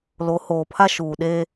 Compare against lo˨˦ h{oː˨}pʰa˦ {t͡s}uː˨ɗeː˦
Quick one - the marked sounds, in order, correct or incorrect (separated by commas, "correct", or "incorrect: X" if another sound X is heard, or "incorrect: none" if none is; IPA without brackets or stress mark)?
correct, incorrect: ʃ